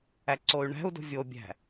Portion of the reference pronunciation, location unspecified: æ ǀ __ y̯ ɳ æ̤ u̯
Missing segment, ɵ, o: o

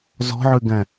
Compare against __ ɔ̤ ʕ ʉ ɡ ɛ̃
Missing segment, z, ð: z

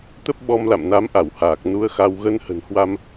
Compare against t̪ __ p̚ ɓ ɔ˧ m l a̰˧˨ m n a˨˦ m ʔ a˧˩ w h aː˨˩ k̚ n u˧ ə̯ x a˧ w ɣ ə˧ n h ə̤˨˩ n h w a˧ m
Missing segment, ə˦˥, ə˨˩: ə˦˥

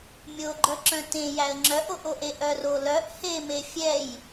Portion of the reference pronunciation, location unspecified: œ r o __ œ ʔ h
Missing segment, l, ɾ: l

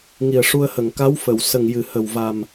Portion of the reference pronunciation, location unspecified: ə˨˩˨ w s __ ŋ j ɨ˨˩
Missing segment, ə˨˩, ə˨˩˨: ə˨˩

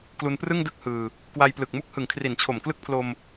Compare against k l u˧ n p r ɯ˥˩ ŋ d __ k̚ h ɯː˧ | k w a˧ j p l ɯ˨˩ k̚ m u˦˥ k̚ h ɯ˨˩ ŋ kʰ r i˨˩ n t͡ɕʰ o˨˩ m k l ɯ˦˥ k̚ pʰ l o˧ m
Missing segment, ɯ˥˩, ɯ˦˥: ɯ˦˥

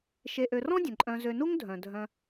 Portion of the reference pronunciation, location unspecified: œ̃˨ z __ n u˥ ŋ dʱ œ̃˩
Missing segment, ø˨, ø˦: ø˨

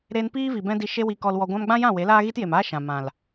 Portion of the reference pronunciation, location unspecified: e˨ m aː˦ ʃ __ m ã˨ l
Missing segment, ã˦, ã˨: ã˨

